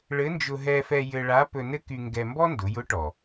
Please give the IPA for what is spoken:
ɭ ɘ˧˥ n d͡ʒ ʊ˧ ɦ ɛ˧ f ɛ˧ j ɘ˧ ɭ a˧˥ p ɵ˧ n ɘ˥ k y˧ ŋ ɡ ɛ˧ m b ɔ˥ n d ʊ˩˧ j ʊ˧˥ ʈ ɔ˩

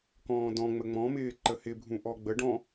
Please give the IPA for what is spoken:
k ɔ̃ː d ɔ̃ ŋ͡m ə ŋ͡m ɔ̃ m ɪː ǃ ə h ɪ bʱ ũ ʔ ɔ ɡ͡b ə ɖ ɔ̃

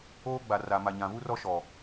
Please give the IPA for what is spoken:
oː˦ ɡ͡b a˨ r a˨ m a˨ ɲ ã˨ v u˦ r ɔ˦ ʃ ɔ˨

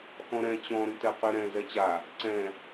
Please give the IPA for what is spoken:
x ɔ̃ ɾ ɛ̃ t͡ɕ ɔ̃ ɾ y t ɛ q y ɾ ɛ̃ z ɛ t͡ɕ a | ǀ ɛ̃

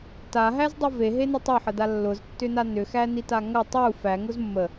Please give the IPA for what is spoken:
t a ɦ æ z dˤ u v e ɦ e n ɐ tˤ ʊ ħ ə d a lː ʊ z tː ʏ n a n ʏ x æ n i t a ŋ ɐ tˤ u f æ ŋ ʊ z mː ə

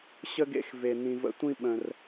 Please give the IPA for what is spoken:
ɕ ə˦ ɡ ḛ˧ x v e˨ n̪ ĩ˨ v ə̰˧ tʷ ĩ˦ ɓ ə̃˨ r

